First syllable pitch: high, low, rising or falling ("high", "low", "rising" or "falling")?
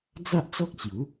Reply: high